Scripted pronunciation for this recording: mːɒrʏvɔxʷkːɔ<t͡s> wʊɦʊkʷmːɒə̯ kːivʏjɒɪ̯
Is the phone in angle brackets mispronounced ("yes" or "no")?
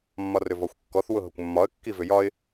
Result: yes